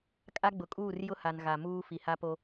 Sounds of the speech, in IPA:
kʼa˦ɡ͡bʊ˨kʼuː˦˨r jʊ˦ha˨n ɣa˨muː˦ fi˨ha˦po˦

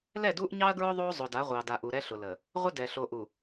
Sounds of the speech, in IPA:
lɛ˦˨du˦ʔɲɑ˦ɐ̯ɡɹʊ˦ ðˤo˦ zˤʊ˨da˨˦ʁʷɑ˨ da˨ʔu˨ ɾɛ˦ɬʊ˨lə˨ | ʁʷə˦dɛ˨ ɬo˨ʔu˨

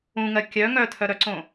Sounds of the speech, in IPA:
ũŋɜ kʲœ ŋœtʰœɾœǀõ

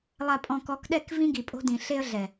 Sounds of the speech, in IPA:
lˠa˨pʼɔ̃˨kɔ˨˦kɗɛ˦˨k vĩ˦ɡi˨pʼo̤˦dĩ˨ ɬe˦ə̯ɮɛ˨

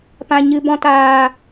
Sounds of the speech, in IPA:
pã˨ɲɨ˨bɔ̃˧ taː˨

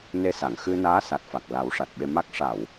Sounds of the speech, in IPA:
ne˧sa˨˩˨ŋ xɨ˧naː˧˥ sa˨˩t̚fa˨˩k̚ la˨˩˦wʂa˨˩t̚ɓe˧ma˦˥k̚ ʂa˨˩˨w

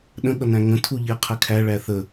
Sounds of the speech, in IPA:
ɗə̃ɠʌnæ̃ ŋə̃tʰu ʎeqʰɛkʰæɭæ θə

